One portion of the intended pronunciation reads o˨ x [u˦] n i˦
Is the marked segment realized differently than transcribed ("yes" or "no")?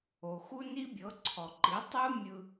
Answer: no